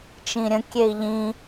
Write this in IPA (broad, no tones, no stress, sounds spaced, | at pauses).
t͡ʃ ĩ ɾʲ ə̃ kʲ e i̯ ʎ ĩ